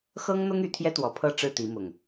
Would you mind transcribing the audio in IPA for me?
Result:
x ɤ˦ ŋ n̪ ʊ˦ ŋ y˨˩ t̪ʰ j ɛ˦ t̪ w ɔ˨˩ pʰ ɤ˥˨ ʈ͡ʂ ɻ̩˥˨ t̪ i˨˦ m ʊ˨˩ ŋ

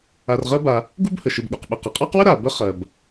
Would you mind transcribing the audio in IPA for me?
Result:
a˨ r ʁ ɜ˦ b a˨ | ɡ u˥ b h ə˩ ʃ ɪ˨ b ɠ u˩ q ɓ ə˨ q ə˩ qʼ ɑ˥ q w ə˥ ɾ a˩ b ə˥ χ ɜ˩ b

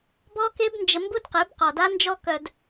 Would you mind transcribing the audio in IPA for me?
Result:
b ɔ˦ k e˦ b n d͡ʒ ə˧ m b u˦ d q e˨˦ b q ɔ˨ d a˦ n d͡ʒ ɔ˦ k œ˦ d

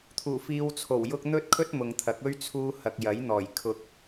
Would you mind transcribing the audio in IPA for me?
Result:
t̪ʰ uː˨˩ f iː˧ w t͡sʰ o˨˩ w j ʊ˥ k̚ n̪ ɵ˥ t̚ kʰ ɵ˥ t̚ m ʊ˨ ŋ t̪ʰ ɐ˨˥ k̚ ɵ˥ ɥ t͡sʰ uː˥ h ɐ˧ k̚ j ɐ˨˥ j n̪ ɔː˨˩ j kʰ ʊ˧ k̚

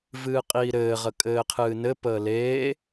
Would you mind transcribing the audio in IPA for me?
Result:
v ɨː qʼ iː ɾ ɘː ʁ ə kʼ ɘː qʰ ɨː n ɘ p əː l e

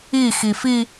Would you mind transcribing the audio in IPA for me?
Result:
i x i f i

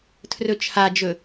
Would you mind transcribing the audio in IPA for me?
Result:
tʰ r ɵ t͡ʃʰ a d͡ʒ ɵ

